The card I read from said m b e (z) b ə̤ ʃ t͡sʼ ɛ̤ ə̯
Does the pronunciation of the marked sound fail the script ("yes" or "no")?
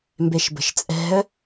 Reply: yes